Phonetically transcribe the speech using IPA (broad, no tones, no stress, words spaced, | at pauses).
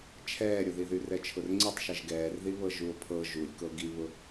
t͡ʃʰɛːɾʲʊðiðy rɛt͡ʃʰʊrŋ͡ǀitˤʃɛʒ ɡɛːrðiβɤ ʒuo̯pʰɤ ʒulʲ kɤɡiβʊ